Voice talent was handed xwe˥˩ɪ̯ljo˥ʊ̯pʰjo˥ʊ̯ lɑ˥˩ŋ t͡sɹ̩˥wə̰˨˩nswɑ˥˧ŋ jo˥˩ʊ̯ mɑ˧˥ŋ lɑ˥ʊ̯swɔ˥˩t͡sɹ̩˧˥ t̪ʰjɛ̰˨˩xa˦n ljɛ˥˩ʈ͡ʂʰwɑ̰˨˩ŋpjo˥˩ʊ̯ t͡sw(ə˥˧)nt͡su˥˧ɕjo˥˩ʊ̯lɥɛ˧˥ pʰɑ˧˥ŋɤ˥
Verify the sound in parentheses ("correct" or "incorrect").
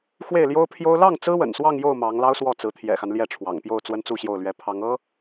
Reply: incorrect